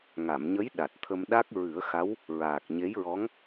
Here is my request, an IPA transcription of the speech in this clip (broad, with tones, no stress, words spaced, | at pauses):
ŋa˨˩˨mɲə˧˥j ɗa˨˩t̚t̪ʰə˧m ɗa˦˥k̚ ɹɨ˨˩˦ə̯xa˧˥w | ɹaː˨˩k̚ɲe˧˥jɹɔ˧˥ŋ